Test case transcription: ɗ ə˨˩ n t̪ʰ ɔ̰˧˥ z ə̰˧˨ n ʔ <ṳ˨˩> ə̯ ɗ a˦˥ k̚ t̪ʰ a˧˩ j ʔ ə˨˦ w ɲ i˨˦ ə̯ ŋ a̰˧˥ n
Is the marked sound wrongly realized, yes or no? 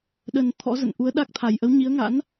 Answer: yes